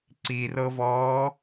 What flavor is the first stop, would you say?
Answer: click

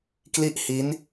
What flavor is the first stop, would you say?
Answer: plain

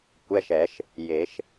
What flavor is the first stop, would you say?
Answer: plain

